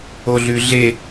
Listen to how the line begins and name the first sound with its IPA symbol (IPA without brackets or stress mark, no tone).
o